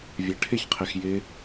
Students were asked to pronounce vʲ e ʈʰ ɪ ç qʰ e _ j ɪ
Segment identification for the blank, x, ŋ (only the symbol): x